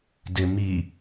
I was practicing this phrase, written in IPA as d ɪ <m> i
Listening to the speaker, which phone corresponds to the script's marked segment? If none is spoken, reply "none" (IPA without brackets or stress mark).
m